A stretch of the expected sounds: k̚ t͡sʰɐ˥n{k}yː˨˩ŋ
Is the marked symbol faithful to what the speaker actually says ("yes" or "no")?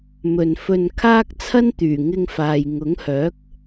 no